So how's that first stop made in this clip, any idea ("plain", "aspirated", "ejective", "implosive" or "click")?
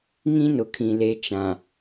aspirated